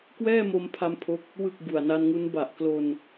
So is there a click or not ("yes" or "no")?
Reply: no